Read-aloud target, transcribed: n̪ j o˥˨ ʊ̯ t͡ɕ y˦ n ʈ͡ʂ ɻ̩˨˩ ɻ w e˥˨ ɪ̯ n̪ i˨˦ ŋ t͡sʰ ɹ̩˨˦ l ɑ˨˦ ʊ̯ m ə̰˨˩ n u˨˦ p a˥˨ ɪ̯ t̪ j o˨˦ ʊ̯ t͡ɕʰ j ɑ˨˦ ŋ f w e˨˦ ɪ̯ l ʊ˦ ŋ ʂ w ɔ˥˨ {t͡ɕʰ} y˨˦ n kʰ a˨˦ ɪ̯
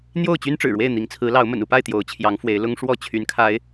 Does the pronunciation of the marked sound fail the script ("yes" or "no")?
no